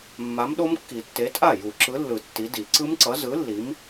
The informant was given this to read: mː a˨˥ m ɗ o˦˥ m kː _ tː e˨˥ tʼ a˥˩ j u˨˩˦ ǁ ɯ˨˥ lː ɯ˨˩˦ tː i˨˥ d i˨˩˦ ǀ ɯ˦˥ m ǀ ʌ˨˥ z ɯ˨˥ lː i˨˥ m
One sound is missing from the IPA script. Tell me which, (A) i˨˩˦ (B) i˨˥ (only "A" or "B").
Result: A